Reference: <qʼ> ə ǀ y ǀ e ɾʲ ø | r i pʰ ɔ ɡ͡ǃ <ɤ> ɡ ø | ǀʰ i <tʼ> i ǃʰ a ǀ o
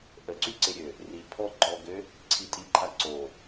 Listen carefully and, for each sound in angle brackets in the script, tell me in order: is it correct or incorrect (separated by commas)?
incorrect, incorrect, correct